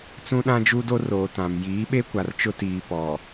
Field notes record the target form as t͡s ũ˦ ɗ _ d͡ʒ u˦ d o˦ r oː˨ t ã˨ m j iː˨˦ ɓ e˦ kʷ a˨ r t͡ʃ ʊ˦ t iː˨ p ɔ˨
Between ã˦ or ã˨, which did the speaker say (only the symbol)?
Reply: ã˦